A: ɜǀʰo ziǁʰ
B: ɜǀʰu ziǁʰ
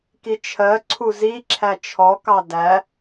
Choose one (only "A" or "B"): B